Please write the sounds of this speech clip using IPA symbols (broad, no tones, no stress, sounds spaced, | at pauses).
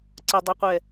ǀ ə dˤ u qʷ ɛ